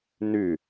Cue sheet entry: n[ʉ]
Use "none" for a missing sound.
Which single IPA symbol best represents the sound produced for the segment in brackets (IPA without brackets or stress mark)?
ʉ